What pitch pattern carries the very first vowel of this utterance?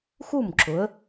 falling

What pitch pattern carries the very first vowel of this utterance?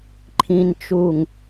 low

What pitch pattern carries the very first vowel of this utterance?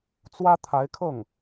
high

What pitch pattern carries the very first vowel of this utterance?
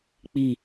falling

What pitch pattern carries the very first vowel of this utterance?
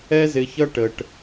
high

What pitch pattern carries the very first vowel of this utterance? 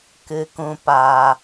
low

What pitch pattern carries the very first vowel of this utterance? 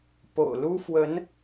low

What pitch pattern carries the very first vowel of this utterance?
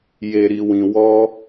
low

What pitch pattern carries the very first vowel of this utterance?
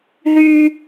high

